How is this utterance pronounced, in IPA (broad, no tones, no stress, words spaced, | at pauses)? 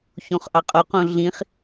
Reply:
çõχʔɑqʼoqõ ɮĩχ